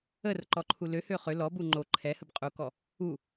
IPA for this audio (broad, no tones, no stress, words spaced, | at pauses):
ərǃɔǃʰu løhø χø lɔbu ŋ͡ǃo ǃʰɛhəb qʼukɔ | u